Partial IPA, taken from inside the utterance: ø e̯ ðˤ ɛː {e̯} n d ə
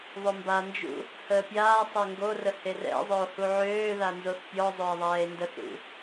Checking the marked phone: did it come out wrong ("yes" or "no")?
no